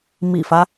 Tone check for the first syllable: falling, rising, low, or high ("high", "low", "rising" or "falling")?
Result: low